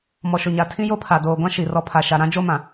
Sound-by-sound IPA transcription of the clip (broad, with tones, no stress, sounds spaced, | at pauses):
m ɔ˨ ʃ ʊ˨ ɲ a˨ tʰ ĩ˦ j o˦ pʰ a˨ d oː˨ ɡʷ ã˦ ʃ i˨ r ɔ˦ pʰ a˨ ʃ a˨ ɾ ã˦ d͡ʒ o˦ m ã˨